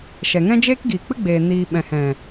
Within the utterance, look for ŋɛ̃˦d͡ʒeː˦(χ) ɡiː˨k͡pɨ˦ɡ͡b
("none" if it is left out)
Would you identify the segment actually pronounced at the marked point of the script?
k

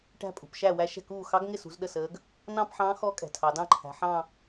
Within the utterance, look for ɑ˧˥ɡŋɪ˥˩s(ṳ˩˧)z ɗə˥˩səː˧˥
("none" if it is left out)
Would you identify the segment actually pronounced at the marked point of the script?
ṳ˩˧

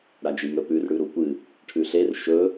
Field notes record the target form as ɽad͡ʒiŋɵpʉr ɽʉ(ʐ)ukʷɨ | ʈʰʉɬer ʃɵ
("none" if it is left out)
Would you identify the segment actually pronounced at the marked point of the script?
ɾ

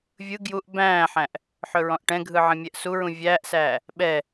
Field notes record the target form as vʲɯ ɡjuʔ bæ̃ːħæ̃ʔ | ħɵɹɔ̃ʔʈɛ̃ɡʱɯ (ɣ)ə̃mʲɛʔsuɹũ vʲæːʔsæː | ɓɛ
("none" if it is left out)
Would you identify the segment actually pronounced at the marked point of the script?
ʕ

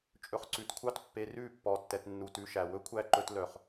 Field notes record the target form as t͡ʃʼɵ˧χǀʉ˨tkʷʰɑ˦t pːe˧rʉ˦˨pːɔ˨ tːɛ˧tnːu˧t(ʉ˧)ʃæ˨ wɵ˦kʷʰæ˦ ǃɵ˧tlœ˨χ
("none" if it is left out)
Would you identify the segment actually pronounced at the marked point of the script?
ʉ˧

